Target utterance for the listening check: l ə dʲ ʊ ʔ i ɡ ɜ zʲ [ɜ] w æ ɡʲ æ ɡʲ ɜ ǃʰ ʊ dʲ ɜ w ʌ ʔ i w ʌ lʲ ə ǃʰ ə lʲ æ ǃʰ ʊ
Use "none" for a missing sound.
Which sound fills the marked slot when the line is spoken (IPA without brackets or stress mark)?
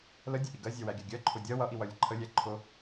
ɜ